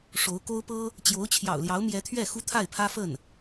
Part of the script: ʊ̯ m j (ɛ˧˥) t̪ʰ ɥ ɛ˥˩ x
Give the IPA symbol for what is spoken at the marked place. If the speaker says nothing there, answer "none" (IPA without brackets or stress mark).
ɛ˧˥